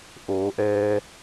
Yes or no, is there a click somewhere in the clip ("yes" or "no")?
no